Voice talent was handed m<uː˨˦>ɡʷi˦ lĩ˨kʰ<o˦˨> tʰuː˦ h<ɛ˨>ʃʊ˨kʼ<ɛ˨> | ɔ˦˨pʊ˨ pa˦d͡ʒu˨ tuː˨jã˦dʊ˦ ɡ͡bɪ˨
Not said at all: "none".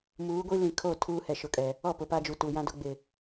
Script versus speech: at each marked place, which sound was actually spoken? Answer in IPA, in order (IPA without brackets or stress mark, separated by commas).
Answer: uː˨˦, o˦˨, ɛ˨, ɛ˨